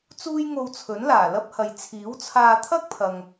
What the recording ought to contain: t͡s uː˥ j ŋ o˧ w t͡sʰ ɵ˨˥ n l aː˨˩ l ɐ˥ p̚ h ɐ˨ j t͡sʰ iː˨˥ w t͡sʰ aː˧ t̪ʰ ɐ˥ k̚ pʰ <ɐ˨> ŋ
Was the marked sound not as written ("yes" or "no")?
no